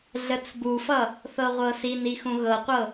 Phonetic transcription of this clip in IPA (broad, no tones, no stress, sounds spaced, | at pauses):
ɮ ə t͡s b u f ʌ | θ ɤ ʁʷ ɤ s i n i x ũ ɣ ɤ qʷ ɤ